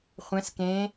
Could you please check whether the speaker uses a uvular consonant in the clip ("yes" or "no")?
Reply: yes